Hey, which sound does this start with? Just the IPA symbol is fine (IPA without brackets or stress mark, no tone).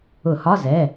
ʊ